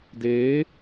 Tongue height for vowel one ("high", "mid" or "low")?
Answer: mid